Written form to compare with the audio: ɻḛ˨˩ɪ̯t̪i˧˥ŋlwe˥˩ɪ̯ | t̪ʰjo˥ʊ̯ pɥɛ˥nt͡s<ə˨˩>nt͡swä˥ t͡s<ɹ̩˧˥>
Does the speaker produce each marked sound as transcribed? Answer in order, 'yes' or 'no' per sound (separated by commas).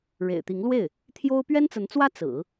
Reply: no, no